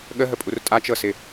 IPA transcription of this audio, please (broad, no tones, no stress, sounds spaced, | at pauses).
ɠ ə ɦ ə pʼ u r tʼ a t͡ʃ ɤ s ɪ